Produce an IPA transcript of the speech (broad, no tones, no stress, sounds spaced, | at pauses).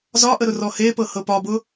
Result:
z ɒ ʔ ə ɾ ʊ r ɔ h e p ɤ h ɤ p ɒ b ʊ